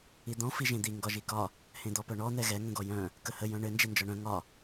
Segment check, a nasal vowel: present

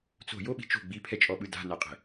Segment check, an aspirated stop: present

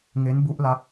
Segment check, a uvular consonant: absent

